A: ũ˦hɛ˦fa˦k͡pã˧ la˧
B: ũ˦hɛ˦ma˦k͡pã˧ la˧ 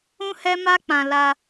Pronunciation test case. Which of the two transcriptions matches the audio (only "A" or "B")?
B